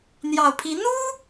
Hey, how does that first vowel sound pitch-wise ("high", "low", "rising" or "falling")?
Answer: low